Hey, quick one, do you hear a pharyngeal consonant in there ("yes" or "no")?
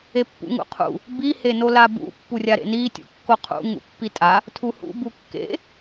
no